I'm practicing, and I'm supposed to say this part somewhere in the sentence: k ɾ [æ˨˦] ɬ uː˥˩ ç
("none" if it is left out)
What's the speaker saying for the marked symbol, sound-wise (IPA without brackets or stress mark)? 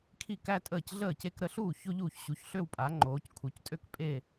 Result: ə˨˦